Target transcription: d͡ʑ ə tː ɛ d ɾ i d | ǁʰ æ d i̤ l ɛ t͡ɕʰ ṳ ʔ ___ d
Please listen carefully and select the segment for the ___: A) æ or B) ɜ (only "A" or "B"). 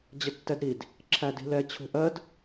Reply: B